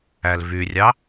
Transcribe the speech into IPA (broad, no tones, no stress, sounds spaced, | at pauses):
æ l v y rʲ ɑ